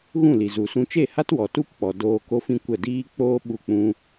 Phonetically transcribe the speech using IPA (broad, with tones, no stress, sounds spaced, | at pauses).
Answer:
ɣ ũ˦˨ l i˨ z u˨ s ũ˦ t͡ʃ e˦˨ h a˦ t w ɔ˨ t u˦ p k͡p ɔ˨ d oː˧ k o˦ f ĩ˦ kʷ ə˦˨ d iː˦ k͡p oː˦ ɓ u˦˨ k͡p ũ˦